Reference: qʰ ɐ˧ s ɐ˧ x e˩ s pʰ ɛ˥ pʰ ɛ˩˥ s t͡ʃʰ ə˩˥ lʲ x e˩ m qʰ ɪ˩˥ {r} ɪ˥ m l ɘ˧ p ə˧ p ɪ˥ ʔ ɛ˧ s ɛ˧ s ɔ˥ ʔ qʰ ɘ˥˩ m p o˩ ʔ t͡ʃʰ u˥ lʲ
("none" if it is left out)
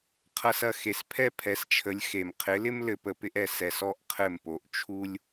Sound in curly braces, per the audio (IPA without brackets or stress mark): l